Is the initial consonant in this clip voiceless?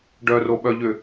no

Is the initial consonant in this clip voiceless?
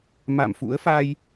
no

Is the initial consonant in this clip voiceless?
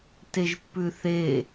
yes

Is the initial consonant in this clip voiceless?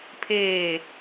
yes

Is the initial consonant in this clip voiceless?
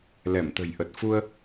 no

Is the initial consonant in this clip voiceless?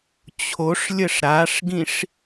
yes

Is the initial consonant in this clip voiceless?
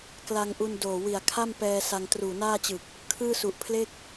yes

